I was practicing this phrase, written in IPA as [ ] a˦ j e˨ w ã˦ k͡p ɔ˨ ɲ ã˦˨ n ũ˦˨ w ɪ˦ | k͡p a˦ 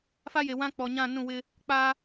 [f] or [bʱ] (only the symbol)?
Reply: f